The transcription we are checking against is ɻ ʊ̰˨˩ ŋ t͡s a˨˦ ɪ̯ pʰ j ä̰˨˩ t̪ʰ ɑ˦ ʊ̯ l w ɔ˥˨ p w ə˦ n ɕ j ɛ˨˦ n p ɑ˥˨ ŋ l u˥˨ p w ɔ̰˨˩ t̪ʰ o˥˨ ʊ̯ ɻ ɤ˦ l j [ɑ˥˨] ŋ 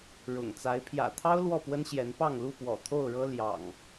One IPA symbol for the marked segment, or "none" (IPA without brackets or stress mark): ɑ̰˨˩